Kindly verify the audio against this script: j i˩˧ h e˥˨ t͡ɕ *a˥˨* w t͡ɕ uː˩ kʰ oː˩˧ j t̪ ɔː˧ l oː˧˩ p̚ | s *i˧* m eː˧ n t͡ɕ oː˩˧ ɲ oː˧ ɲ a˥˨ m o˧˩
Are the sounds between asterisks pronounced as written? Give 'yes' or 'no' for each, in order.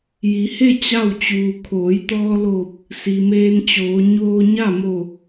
yes, no

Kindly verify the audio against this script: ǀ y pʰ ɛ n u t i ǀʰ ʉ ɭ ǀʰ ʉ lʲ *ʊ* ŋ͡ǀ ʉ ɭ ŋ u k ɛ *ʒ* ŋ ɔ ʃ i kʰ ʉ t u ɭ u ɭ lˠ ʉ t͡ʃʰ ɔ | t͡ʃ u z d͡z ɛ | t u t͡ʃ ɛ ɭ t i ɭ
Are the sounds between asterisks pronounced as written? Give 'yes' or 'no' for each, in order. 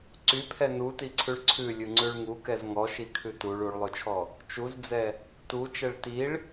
no, no

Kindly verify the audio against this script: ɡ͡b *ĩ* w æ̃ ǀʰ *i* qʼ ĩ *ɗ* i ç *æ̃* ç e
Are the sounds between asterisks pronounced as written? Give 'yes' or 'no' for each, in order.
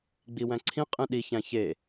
no, no, yes, yes

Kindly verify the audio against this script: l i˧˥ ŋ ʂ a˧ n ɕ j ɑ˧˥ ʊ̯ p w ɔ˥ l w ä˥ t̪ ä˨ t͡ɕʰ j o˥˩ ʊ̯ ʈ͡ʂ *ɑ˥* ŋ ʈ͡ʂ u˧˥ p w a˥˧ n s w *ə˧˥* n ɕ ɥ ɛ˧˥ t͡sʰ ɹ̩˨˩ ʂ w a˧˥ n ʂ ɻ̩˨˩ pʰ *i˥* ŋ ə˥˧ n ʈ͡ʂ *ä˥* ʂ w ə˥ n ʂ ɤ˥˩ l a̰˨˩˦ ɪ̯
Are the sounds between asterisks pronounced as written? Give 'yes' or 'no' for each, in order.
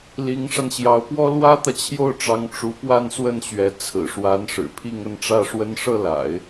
no, no, no, no

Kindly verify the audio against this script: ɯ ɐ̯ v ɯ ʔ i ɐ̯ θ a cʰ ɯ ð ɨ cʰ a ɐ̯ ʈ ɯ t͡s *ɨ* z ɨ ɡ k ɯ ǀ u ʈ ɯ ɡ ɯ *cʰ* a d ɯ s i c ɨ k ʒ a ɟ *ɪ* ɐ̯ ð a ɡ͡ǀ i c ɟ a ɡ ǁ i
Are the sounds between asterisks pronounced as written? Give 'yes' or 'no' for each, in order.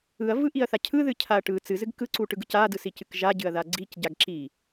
yes, no, no

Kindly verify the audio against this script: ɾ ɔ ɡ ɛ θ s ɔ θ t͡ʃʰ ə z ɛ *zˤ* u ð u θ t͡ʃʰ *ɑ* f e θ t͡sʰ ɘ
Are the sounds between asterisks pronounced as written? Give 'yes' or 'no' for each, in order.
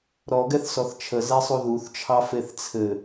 no, yes

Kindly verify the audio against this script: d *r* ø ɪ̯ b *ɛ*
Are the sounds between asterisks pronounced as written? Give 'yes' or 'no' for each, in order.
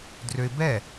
yes, yes

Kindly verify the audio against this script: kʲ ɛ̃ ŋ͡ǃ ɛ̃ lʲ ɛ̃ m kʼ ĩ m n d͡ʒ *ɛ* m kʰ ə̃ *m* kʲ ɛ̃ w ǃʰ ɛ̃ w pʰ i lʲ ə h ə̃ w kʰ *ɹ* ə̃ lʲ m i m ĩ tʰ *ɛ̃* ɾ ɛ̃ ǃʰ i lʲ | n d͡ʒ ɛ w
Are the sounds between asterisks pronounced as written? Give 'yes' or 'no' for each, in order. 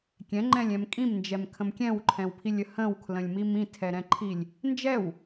yes, yes, no, no

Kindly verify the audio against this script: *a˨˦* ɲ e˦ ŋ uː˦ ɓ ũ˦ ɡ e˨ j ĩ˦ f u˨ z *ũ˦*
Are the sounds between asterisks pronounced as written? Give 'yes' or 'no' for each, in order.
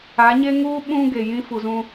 yes, yes

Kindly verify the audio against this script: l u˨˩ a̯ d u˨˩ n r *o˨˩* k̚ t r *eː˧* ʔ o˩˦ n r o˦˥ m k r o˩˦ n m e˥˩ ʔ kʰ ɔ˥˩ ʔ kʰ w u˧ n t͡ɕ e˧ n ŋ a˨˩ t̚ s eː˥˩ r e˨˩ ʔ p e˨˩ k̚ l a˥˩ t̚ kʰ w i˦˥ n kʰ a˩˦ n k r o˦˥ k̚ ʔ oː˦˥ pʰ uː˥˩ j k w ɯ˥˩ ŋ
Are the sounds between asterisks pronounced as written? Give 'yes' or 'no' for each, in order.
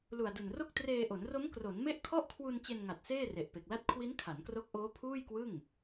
no, yes

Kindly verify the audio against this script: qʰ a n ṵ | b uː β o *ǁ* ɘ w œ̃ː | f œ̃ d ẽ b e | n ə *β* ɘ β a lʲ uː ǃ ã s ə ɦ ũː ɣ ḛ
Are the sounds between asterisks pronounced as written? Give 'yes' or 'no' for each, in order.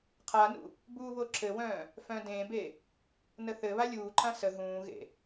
yes, no

